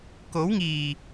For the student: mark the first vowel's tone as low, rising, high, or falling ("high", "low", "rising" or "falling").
rising